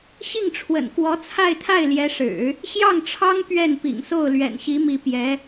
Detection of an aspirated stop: present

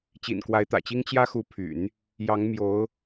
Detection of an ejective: absent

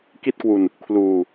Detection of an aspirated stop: present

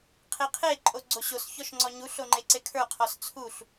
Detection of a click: present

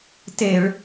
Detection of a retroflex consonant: present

